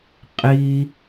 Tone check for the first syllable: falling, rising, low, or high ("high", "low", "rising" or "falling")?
low